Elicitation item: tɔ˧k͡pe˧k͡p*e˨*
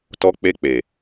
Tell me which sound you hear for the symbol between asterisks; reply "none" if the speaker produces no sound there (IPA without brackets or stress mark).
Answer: e˨